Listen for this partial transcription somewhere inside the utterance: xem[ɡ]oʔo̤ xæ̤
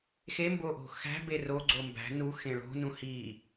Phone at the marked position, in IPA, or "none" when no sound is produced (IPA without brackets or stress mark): b